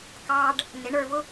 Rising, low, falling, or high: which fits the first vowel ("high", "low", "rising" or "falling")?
high